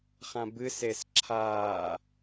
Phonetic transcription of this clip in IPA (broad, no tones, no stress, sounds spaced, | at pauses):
χ ã b ɨ s e s ǁʰ aː